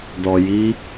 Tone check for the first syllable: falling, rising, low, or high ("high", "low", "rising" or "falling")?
low